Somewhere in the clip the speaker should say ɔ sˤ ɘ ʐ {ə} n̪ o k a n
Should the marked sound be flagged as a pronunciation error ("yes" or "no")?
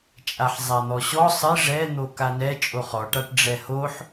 yes